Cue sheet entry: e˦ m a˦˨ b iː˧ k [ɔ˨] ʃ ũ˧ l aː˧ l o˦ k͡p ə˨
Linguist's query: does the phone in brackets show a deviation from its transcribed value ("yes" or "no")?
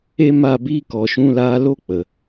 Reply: no